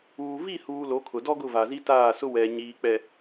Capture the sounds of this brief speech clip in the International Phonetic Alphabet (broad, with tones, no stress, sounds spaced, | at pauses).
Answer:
uː˨ v i˦˨ h uː˨ l o˨˦ kʰ ʊ˨ d ɔ˦ ɡ ʊ˦˨ v a˨ z i˦ t aː˦˨ s ʊ˦ w ɛ˨ ɲ iː˨ k͡p ɛ˨